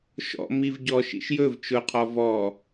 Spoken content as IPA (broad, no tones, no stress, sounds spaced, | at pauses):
ʃ ɔ̰ m i v ɟ ɔ ʃ ḭ ʃ j ɵ v t͡ʃ ʊ qʰ ɔ v ɔ